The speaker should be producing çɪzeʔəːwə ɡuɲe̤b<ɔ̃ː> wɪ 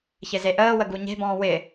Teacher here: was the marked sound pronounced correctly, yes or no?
yes